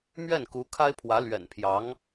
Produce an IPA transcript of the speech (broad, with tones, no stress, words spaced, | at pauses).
mɥɛ˥˩nku˧˥ kʰa˥ɪ̯pʰwä˧˥ lɥɛ̰˨˩npʰjɑ˧˥ŋ